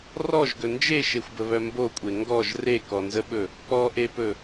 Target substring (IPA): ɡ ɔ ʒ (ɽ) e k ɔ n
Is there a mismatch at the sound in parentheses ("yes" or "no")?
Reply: yes